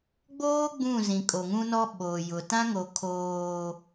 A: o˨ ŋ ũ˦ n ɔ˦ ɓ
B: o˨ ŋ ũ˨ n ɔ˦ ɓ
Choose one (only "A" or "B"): A